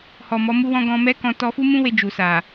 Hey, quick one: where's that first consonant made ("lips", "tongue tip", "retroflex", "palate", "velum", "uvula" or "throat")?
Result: throat